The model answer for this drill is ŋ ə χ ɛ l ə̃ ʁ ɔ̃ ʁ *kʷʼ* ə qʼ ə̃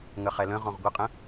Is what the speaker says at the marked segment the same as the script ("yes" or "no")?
no